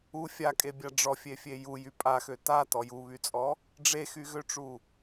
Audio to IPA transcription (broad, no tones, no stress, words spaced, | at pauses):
u fʲakʼebʲa ɖ͡ʐɔfʲefʲe jujy pʼaxø tatɔ juβyt͡sʼɔ | ɖ͡ʐexyɣøʈ͡ʂu